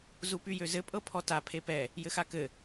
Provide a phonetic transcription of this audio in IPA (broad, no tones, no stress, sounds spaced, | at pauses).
z u p y j ø z ɘ pʼ ɤ pʰ ɔ t a pʰ e p ɛ | j ɘ x a k ɘ